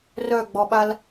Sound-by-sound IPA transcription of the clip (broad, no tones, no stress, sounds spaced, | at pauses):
r œ ɡ͡b ɔ ɓ a l